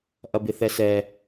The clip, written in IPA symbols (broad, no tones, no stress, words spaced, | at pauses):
ʔɐbɪθɛsɛ